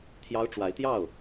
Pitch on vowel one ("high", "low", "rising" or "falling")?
high